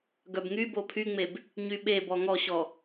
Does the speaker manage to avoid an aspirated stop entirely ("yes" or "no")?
no